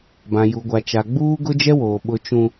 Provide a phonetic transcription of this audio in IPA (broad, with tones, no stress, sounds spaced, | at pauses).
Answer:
b ã˨ j u˨ ɡʷ a˨ t͡ʃ a˨ ɡ͡b uː˦ ɡ ʊ˦ d͡ʒ ɛ˦ w oː˨ ɓ ʊ˦ t͡ʃ ũ˦